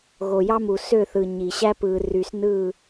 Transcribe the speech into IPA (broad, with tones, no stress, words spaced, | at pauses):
ɣo˨jɑ˦mu˨ sø˦˨θɯ˨ ɲi˨ ɕæ˦pɯː˨ ry˨snɯ˦˨